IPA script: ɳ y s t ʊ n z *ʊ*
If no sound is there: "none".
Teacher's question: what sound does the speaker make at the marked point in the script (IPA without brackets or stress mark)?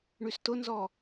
ɔ